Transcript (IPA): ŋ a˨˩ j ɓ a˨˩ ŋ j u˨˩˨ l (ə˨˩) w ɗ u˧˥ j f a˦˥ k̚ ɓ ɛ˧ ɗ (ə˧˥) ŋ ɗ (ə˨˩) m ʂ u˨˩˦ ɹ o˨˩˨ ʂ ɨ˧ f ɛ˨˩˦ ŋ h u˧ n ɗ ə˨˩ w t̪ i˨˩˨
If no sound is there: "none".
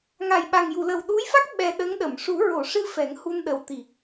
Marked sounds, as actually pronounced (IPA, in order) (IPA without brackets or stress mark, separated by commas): ə˨˩, ə˧˥, ə˨˩˨